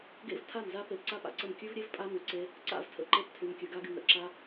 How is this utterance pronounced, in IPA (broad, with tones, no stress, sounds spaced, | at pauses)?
ɡ ḛ˦ v tʰ a˦˨ m z a˦ p e˧ p ǀ a˦ p a̰˨ ǀ ə˦˨ m kʲ ʉ˦ v ɾʲ e˦ v pʼ a˦ m y˧ ǀ e˦ | ǀ a̰˦˨ v tʰ ə̰˧ ǃ e˧ p tʰ y˧ m kʲ ʉ˧ ɡ a˦ ɡ y˧ m ɾ ə̰˨ ǁ a˦